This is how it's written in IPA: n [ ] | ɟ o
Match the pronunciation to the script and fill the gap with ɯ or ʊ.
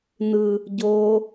ɯ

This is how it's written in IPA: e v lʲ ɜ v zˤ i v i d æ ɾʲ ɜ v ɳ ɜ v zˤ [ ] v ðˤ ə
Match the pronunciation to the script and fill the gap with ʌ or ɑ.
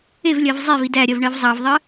ɑ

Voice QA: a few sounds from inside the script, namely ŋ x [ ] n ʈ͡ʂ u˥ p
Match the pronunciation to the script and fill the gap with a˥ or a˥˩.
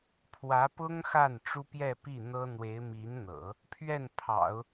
a˥˩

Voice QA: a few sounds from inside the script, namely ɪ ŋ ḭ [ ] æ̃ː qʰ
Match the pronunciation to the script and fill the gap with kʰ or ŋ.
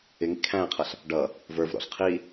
kʰ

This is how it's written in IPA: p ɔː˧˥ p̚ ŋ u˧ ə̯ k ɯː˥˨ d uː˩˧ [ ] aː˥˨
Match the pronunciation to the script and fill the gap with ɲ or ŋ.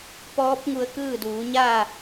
ɲ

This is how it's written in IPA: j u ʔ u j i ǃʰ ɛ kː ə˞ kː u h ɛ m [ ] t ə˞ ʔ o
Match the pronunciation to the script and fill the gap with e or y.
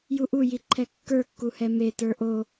e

